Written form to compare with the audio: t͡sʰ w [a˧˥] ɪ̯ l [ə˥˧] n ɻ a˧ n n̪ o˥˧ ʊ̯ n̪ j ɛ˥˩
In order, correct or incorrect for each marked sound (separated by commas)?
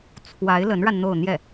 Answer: correct, incorrect